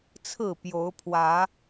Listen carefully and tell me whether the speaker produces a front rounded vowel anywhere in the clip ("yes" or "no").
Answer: no